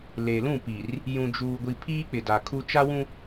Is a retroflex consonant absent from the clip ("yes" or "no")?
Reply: yes